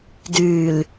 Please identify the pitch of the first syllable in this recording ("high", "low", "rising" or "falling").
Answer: low